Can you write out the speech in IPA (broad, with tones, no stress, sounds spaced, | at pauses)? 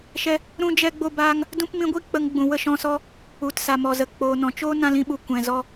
ʃ ɛ˦ | ɾ ũ˦ d͡ʒ ɛ˦ ɡ͡b o˦ b aː˦ ŋ | d ũ˦ p m ĩ˧ ɡʷ i˦ k͡p ə˧ ŋ ɡ͡b ũ˨ w ə˦ ʃ ɔ̃˧ s ɔ˦ | u˨ t s a˨ m ɔ˨ z ə˨ k͡p oː˨ n ɔ̃˨ t͡ʃ oː˦ n ã˧ l ĩ˧ ɓ u˨ kʷ ɛ̃˨ z ɔ˧